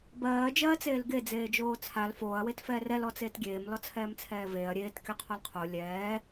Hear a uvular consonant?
yes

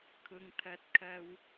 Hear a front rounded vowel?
no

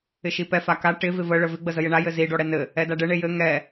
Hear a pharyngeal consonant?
no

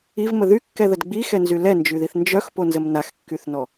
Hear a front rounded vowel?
yes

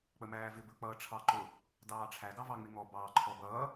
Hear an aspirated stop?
yes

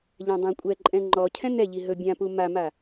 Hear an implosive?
no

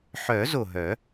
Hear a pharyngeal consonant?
yes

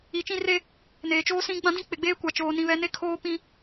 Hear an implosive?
no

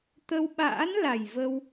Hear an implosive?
yes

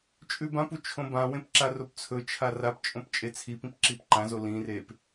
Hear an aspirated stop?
yes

